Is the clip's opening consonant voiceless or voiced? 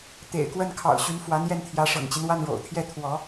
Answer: voiceless